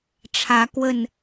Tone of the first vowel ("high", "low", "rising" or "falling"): rising